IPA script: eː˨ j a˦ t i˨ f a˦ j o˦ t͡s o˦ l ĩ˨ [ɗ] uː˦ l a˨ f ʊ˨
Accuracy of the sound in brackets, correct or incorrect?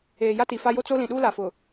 correct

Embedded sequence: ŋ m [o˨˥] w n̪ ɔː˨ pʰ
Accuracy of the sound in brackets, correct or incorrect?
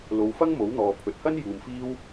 correct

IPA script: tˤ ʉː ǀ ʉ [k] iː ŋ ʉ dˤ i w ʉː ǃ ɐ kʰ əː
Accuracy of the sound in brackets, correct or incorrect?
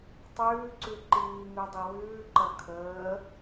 incorrect: ǃ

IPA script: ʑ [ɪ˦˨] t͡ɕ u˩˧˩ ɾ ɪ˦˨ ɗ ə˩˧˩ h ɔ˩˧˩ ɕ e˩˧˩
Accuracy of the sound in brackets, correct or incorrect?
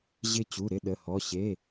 correct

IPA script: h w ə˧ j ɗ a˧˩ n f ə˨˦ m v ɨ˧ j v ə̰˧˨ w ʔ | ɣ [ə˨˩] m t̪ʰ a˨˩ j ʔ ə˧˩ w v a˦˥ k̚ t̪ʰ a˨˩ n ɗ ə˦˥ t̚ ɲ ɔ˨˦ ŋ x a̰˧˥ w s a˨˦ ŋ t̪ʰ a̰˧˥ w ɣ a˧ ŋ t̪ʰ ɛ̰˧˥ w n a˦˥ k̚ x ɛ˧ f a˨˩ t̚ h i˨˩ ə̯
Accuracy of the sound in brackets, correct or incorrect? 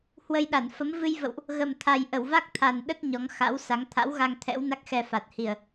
correct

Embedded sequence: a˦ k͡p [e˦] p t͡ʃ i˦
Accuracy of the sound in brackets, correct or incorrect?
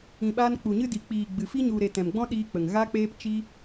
incorrect: eː˦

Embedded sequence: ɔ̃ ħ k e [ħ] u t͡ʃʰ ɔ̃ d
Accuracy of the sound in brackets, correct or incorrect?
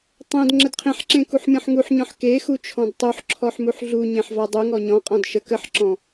incorrect: x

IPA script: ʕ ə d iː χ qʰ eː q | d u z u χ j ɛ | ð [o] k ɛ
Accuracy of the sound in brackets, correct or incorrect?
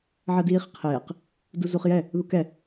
incorrect: u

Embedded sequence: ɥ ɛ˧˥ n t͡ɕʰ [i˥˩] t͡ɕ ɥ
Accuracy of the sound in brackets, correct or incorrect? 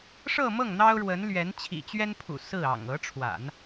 incorrect: ḭ˨˩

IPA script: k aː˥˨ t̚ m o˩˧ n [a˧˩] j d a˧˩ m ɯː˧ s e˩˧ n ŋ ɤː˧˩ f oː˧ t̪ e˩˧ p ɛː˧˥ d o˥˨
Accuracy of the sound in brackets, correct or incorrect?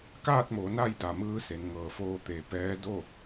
incorrect: a˥˨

